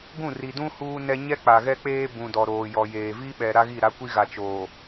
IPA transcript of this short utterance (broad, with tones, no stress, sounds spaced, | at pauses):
ɡ ũ˦˨ r i˨ d ũ˦ h uː˦ n ɛ˦ ɲ ɛ˦ k͡p a˨ ɣ ɛ˦ k͡p eː˦ b ũ˨ d ɔ˨ ɾ oː˨ j ɔ˨ j eː˨ v i˦ ɓ ɛ˨ ɾ a˦ ɣ i˦˨ ɾ a˦ kʷ i˦ ɣ a˨ t͡ʃ oː˨